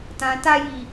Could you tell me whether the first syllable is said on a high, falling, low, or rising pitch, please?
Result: low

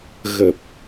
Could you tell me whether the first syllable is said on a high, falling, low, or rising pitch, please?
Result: low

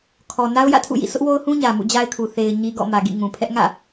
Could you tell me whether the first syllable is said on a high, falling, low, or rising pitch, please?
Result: low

